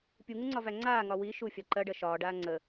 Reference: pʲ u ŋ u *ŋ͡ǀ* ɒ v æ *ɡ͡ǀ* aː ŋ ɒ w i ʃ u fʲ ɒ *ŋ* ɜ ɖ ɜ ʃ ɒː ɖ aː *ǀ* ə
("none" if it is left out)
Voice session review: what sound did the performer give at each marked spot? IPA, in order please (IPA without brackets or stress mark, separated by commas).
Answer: ŋ͡ǀ, ŋ͡ǀ, ǃ, ŋ͡ǀ